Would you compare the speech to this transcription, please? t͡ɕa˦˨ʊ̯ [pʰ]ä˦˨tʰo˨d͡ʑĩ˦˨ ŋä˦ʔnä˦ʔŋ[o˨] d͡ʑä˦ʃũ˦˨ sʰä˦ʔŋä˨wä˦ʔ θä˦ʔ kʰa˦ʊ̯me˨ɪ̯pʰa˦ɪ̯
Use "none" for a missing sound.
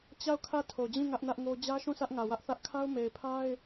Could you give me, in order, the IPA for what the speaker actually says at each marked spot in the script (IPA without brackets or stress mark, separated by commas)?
kʰ, o˦